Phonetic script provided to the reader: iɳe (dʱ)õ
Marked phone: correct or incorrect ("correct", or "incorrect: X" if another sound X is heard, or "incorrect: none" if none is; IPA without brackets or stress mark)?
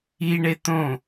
incorrect: t̪